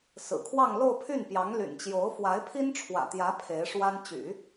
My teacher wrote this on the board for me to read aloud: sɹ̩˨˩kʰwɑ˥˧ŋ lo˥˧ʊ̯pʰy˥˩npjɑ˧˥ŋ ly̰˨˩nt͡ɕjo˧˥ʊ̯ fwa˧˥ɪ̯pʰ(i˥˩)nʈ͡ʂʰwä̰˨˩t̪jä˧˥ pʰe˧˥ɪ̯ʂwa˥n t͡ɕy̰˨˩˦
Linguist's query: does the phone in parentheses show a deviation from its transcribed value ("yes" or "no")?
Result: yes